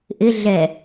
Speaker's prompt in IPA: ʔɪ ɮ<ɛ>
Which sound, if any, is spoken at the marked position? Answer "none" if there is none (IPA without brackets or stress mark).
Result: ɛ